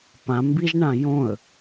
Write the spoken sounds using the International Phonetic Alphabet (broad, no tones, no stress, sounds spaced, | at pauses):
p ã m b i ʒ ɳ ã j õ ə̯